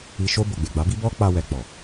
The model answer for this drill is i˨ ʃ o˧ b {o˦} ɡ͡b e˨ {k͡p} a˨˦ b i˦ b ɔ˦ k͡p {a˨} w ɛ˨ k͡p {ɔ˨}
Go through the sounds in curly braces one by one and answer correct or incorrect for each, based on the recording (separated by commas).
incorrect, incorrect, incorrect, correct